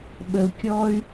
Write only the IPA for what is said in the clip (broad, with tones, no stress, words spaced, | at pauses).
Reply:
ɓə˨u̯kʲɔ˦y̯